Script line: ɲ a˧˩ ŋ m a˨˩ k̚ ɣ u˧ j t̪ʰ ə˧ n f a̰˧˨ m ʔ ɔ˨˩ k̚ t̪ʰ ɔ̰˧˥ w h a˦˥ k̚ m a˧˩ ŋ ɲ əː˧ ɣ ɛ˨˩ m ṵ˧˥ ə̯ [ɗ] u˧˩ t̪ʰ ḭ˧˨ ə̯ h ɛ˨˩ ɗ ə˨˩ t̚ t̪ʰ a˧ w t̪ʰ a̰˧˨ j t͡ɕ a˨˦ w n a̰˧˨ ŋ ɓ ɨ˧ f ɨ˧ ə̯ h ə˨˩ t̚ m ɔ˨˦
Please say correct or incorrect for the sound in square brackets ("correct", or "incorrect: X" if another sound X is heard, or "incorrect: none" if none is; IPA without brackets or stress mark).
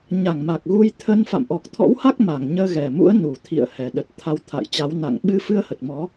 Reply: incorrect: n